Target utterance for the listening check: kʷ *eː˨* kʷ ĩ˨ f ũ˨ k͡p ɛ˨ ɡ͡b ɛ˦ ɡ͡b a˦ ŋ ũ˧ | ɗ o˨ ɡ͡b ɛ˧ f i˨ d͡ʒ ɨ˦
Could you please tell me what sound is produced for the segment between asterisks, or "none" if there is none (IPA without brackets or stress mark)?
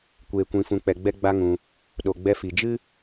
eː˨